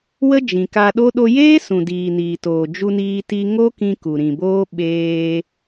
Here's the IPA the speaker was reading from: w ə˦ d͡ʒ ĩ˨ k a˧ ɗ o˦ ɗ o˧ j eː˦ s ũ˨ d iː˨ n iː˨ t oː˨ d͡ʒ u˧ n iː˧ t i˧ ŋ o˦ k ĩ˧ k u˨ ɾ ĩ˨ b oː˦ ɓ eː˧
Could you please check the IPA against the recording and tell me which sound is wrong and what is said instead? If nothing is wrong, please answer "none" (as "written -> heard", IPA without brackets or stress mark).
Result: none